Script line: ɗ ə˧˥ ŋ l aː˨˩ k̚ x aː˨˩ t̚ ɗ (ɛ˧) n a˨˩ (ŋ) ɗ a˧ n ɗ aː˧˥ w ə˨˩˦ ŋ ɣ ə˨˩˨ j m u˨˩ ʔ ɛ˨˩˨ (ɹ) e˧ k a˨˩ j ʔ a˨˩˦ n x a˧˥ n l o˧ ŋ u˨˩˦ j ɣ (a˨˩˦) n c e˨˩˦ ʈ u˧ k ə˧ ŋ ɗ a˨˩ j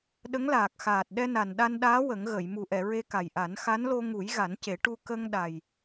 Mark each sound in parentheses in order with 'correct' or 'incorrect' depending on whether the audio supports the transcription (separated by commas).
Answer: correct, incorrect, correct, correct